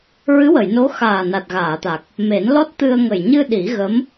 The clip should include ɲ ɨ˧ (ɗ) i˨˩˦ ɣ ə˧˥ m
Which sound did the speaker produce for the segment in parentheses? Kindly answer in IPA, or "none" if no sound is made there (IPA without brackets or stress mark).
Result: ɗ